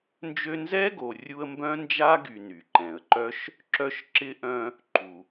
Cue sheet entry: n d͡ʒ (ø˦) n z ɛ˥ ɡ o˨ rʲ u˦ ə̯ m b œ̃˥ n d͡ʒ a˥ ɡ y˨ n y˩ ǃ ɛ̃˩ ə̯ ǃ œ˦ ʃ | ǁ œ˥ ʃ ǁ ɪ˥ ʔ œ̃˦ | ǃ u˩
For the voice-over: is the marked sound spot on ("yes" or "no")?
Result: yes